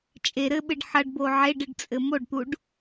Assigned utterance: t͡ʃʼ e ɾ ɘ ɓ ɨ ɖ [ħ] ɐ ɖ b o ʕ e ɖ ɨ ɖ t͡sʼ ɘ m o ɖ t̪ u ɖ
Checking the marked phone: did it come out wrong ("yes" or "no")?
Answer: no